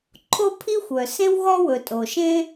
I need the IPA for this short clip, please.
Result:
ǃʰ o˥ pʰ i˥ xʷ œ˩ s ẽ˥ w ɣ ɔ˥ w ɵ˩ tʼ o˩ ʃ ẽ˥

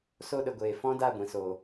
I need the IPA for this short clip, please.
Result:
s o˧ ɗ ə˨ ɡʷ eː˨ f ɔ̃˦ d a˦˨ ɡʷ ĩ˨ s oː˨

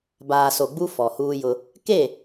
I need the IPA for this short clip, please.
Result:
b aː˨ s o˨ ɡ͡b u˦ f ɔ˨ h uː˦ j ʊ˦ | k e˦˨

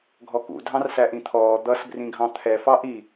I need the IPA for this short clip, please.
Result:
ɡʱ ɔ k ṵ dʱ ɑ̃ r s æ ʔ ĩ t̪ʰ ɔː d̪ ʌ s b r ĩ ɡʱ ɑ̃ t̪ʰ ɛ f ɑ ʔ i

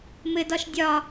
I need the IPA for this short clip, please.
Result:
m ɘ d ɒ ʃ dʲ ɒ

